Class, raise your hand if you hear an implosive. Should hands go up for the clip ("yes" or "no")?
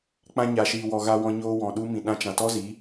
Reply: yes